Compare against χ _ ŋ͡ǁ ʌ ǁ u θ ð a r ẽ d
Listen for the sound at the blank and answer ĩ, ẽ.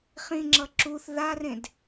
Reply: ĩ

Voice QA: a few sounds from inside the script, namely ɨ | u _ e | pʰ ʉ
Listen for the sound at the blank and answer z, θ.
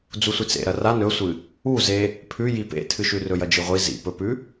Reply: z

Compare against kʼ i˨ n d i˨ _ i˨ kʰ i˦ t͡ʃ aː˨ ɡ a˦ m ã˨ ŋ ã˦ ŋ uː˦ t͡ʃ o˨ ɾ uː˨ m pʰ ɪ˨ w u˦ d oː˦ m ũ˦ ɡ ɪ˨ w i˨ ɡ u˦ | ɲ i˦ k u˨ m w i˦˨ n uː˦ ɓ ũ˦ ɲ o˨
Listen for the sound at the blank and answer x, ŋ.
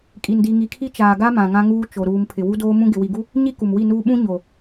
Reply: ŋ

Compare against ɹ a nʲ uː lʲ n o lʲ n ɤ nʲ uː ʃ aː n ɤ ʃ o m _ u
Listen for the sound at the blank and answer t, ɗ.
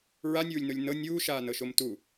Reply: t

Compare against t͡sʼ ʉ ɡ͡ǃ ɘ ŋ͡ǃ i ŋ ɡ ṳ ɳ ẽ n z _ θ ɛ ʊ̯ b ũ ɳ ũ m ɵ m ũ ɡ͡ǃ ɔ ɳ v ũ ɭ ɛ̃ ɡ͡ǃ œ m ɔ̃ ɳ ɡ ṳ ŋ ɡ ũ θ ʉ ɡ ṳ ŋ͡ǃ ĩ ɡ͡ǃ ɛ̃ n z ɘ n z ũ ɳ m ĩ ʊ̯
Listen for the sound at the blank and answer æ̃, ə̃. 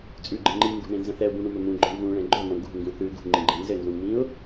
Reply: ə̃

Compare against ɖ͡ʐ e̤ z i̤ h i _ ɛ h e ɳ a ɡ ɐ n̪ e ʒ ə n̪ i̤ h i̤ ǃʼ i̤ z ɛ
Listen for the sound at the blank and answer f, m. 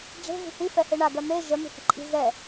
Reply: f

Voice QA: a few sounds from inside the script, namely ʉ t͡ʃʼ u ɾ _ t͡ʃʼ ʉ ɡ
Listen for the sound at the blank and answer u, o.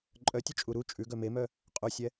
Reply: u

